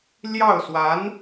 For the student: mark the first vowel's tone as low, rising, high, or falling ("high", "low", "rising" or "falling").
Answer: falling